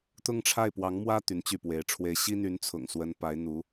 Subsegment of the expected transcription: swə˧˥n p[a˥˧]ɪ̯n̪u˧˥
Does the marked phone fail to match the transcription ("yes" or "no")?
yes